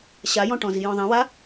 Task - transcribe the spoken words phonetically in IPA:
ɕajɔ̃ʈɔ̃zi jɔ̃ðˤĩwa

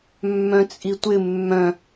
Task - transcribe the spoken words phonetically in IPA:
mːœ̃t͡sʼitʷɪ mːœ̃

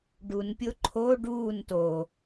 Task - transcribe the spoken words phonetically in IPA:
ɖunpʲo ǃʰo ɖuːn to

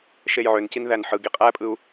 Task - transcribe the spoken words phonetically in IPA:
ʃejʕøncin ðænħɯɡi qʼæpʼɯu̯

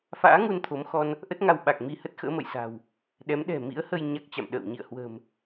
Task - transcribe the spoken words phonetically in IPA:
fa̰ː˧˥ŋu˧n t̪ʰo˨˦mxɔ˧n | ʔə˦˥t̚ŋa˧wɓa˨˩k̚ mi˧hə˦˥t̚xə̰ː˧˥mə̰˧˨j sa̤˨˩w | ɗɛ˨˦mɗɛ̤˨˩mḭ˧˥ə̯hə˧j ɲa˦˥k̚t͡ɕa̰˧˨mɗə̰ː˧˨w ɲḭ˧˨ə̯hwə̤˨˩m

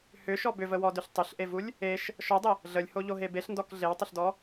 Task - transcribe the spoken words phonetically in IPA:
hʏʃɔ bʏvəwɔdʏɬ tˤʏɬʔevulʲ | eʃ | ʃɔdˤə | ɮəlʲhoʎoɦe beɬndɔk ɮewtˤəɬdɔ

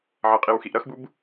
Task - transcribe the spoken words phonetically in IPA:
ʕʌqʼiwxiʔ ɾʌxbub

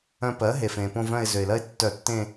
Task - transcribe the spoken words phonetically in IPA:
œ̃˦˨ pɜ˩˥ ɦe˩fẽ˩põ˦˨vœ̃˦˨ɪ̯ zø˩ɪ̯lɜ˦ɪ̯tːœ˧˩˧tːẽ˦˨

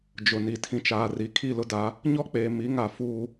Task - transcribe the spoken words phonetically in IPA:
d͡ʒʊ˨ni˨ tʰĩ˨t͡ʃaː˨ri˨ kʰi˦˨lʊ˦da˨˦ | ɲɔ˦k͡peː˨ mi˨˦ŋa˨ fuː˦

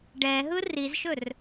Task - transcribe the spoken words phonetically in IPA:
ɖɛɦɯ rizʃɵr

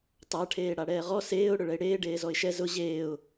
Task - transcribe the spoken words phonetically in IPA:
tˤaʈʰeː ɽaɽɛːʁɔ seːʊ̯ ɽʊɭɛɪ̯ɽeː ɖeːzɔɪ̯ʃɛ zʊ ʑeːʊ̯

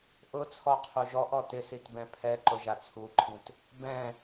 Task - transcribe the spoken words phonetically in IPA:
ʔʊt͡sʰɔ qʰuʒɔʔɔ tɪsit bɛ̃pʰɛǃʊ ʒat͡sʰuǃʰĩt | bɛ̃

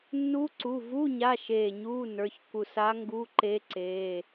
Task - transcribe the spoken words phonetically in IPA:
nːu˧˥ǀu˩˧˩vu˧˥˧ ɲa˧˥˧ʃeː˧˩ɲuː˧˥˧ nə˞˩˧˩çku˧˩ sa˧˥ ŋɡu˧˥˧ǃe˧˥ ǀeː˩˧˩

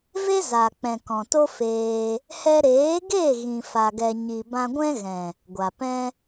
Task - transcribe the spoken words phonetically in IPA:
ve˦za˨k͡pɛ̃˨ kɔ̃˨to˦feː˧ | hɛ˧ɾeː˨˦ɡe˦˨ ɣĩ˧fa˧ɡɛ˧ ɲi˨bã˧ɡʷɛ̃˦ɣɛ̃˨ | ɡʷa˨pɛ̃˦

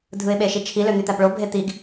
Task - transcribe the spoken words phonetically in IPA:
dʱɯɪ̯ɓeʃit͡ʃʰi løn̪yt̪æpɭo bʱet̪iɡ

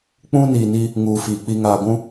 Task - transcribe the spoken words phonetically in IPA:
k͡pũ˦ niː˨ni˦ | ŋuː˨fiː˨ k͡pi˨ŋaː˨ɡʷũ˦

